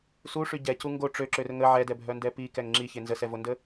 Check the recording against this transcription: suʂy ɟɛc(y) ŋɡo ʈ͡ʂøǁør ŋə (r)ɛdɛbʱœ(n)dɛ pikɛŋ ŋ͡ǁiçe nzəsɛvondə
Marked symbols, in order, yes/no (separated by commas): no, no, yes